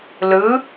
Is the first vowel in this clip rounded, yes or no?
no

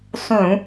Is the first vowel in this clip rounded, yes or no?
yes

